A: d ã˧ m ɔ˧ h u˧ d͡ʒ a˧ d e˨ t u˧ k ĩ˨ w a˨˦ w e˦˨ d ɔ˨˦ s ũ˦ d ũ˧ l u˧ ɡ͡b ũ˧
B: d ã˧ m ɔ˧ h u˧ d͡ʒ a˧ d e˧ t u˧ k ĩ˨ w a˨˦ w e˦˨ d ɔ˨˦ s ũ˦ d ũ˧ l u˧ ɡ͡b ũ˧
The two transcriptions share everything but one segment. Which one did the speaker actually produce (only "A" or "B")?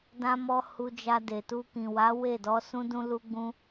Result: A